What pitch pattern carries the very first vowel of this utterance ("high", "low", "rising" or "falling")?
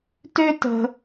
high